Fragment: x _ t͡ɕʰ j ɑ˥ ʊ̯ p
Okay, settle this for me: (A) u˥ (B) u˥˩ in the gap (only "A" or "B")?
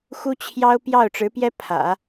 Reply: A